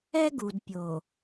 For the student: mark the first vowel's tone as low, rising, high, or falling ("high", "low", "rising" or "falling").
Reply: high